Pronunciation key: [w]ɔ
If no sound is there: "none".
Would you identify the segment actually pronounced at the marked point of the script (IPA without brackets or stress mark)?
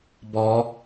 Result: b